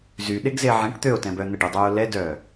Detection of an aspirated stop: absent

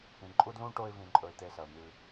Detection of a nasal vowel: present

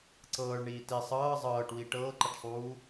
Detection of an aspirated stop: absent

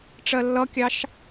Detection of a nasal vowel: absent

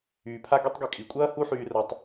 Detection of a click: absent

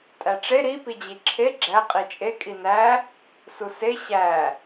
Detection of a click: present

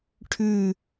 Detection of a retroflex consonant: present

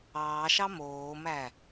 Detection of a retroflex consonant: absent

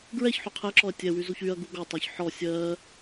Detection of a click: present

